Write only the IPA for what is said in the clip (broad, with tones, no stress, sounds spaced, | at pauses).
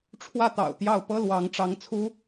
ʈ͡ʂʰ w ä˥˩ t̪ ɑ̰˨˩ ʊ̯ t̪ j ɑ˥˩ ʊ̯ p ɤ˥ l w ɑ˧˥ ŋ ʈ͡ʂ ɑ˧˥ ŋ t͡sʰ u˥